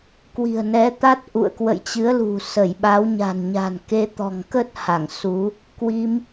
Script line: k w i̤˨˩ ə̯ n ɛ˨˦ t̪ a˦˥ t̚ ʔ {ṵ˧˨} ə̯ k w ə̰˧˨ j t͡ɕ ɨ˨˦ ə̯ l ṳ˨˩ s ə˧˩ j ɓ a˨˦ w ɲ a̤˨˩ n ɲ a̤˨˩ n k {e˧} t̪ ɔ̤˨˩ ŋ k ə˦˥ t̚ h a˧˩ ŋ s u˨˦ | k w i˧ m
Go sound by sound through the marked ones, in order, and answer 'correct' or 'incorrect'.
correct, correct

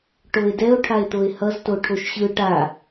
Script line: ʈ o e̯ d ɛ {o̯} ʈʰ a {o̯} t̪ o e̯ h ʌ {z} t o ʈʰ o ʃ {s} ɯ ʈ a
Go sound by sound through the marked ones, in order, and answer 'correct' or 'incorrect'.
correct, incorrect: e̯, correct, incorrect: ɕ

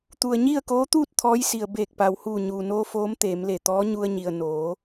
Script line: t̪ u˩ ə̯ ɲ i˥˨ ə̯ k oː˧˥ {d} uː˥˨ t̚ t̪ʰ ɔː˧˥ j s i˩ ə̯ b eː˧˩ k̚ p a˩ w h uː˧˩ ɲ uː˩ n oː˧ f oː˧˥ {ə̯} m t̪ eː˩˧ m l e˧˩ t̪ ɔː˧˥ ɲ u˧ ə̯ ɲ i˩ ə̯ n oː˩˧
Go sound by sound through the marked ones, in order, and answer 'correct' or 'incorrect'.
incorrect: t̪, incorrect: none

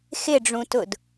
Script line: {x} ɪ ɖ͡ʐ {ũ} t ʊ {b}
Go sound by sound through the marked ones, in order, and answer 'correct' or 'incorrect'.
correct, correct, incorrect: d

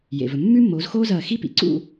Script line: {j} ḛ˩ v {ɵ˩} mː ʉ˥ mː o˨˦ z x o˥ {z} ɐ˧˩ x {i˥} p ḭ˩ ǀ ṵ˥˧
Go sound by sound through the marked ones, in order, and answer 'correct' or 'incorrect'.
correct, correct, correct, correct

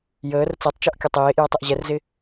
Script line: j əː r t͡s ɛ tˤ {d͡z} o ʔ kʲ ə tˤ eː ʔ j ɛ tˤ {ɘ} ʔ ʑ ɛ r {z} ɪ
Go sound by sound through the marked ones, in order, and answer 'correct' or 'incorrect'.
incorrect: t͡ʃ, correct, correct

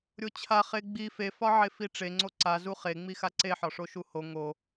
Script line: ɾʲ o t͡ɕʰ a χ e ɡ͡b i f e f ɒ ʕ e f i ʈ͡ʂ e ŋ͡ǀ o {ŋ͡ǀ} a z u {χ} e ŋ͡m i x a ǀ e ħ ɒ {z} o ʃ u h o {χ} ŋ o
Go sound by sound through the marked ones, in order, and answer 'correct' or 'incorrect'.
incorrect: ǀ, correct, incorrect: ʂ, incorrect: none

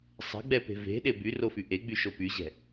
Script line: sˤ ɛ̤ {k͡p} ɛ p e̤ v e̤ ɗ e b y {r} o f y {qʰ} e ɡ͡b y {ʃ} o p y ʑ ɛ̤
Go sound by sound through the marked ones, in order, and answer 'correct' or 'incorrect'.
incorrect: ɡ͡b, correct, incorrect: ʔ, correct

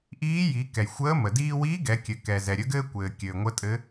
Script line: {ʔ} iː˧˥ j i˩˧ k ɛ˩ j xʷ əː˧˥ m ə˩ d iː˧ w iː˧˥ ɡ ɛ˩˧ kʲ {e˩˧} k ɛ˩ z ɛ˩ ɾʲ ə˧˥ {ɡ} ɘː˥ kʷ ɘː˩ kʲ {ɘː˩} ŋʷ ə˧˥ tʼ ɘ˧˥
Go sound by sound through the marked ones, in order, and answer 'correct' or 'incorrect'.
correct, incorrect: ɘ˩˧, correct, correct

